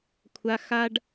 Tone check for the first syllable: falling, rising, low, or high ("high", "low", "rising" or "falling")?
high